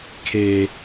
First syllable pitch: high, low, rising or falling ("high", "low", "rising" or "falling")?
low